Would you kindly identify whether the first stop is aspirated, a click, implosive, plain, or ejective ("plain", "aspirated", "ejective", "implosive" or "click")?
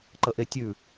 click